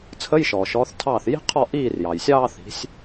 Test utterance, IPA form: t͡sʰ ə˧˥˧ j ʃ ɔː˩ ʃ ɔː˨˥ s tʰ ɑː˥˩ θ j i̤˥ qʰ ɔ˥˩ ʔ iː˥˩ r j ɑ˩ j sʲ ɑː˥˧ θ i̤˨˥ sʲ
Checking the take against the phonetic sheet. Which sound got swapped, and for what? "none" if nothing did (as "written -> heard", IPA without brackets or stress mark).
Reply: s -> θ